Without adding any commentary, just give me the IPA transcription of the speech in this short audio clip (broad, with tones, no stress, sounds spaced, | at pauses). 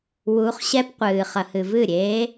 w u˧˥ χ ɕ ɛ˥ p qʷ ɨː˨ χ ɐ˨ h ɨ˨ v ɨ˥˩ ɾʲ eː˧˥